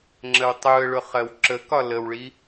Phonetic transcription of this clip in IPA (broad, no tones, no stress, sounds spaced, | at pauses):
ŋ͡ǁ ə w tˤ u ə̯ ɭ ʊ χ ɜ w ǁ ə k ɒ l ə w ɭ i